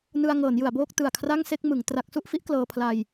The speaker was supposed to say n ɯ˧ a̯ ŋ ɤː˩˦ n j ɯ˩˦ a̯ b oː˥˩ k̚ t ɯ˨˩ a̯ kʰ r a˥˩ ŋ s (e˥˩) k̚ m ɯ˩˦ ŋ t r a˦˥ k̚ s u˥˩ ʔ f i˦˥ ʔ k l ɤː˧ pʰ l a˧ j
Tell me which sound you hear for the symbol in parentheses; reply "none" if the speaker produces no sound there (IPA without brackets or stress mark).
e˥˩